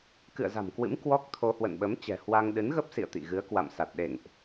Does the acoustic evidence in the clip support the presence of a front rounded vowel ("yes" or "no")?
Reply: no